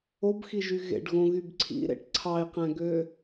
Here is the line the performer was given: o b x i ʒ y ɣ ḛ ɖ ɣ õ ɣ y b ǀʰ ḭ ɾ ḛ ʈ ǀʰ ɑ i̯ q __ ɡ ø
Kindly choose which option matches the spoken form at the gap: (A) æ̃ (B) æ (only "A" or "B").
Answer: A